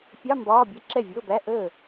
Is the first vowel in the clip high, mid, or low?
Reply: low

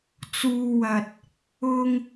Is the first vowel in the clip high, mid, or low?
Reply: high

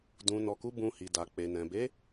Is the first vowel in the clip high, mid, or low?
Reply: high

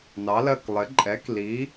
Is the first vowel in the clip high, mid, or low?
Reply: low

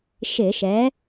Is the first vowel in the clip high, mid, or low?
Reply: high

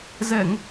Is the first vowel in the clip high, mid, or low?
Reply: mid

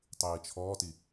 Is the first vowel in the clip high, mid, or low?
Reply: high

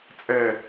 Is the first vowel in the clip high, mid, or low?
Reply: mid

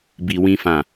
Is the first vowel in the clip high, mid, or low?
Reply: high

